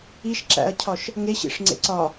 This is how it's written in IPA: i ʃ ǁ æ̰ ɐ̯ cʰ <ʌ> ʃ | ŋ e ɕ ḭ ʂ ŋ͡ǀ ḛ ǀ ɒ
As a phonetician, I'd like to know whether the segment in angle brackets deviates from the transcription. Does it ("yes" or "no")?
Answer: yes